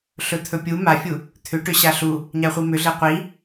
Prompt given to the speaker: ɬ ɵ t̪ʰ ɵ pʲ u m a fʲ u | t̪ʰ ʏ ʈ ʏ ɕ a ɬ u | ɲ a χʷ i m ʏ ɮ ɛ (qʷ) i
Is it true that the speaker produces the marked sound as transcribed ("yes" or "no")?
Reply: yes